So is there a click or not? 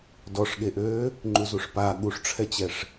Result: yes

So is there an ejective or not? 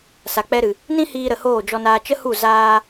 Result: no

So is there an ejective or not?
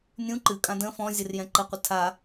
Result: yes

